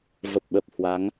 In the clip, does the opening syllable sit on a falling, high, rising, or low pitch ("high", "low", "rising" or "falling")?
low